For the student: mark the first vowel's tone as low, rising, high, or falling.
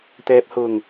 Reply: low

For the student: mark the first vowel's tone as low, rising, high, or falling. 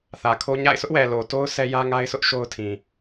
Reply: low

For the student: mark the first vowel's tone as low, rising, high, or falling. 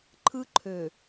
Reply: high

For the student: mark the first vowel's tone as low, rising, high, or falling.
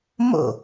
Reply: falling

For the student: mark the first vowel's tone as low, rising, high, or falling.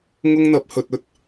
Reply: high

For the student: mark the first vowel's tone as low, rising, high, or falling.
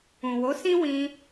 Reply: low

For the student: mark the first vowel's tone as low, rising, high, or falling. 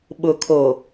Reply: low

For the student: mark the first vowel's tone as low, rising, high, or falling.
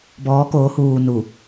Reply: rising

